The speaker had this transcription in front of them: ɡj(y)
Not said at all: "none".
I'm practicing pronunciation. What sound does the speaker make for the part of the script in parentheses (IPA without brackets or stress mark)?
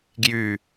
y